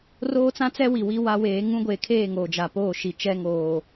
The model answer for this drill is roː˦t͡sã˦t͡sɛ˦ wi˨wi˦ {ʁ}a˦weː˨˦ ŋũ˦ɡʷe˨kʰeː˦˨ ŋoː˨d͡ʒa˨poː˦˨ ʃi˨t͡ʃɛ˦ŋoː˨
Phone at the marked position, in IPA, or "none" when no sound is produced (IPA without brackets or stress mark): w